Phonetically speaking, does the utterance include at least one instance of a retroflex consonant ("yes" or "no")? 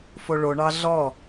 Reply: yes